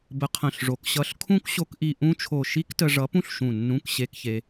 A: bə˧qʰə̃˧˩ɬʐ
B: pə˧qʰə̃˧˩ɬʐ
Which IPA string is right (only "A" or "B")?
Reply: A